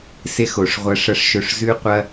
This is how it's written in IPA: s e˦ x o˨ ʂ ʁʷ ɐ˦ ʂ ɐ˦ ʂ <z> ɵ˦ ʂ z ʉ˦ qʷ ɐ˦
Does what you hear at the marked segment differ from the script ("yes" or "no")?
yes